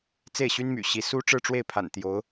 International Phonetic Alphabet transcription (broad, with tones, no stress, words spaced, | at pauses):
t͡se˥˩ɪ̯ɕy˥nmy̰˨˩ɕi˧˥ su˥ ʈ͡ʂɻ̩˥˧ʈ͡ʂwe˥˩ɪ̯pʰa̰˨˩n t̪jo˧˥ʊ̯